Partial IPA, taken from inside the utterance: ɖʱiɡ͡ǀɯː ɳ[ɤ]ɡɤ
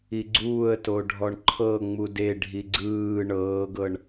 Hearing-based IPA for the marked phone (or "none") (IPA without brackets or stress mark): ɤː